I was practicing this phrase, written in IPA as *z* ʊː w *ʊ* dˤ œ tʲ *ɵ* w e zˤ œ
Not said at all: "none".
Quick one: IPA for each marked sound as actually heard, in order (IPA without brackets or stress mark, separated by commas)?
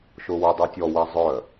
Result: ʃ, ʊ, ɔ